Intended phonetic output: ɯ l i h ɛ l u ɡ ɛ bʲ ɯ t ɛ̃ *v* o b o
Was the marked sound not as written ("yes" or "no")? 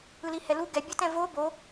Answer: no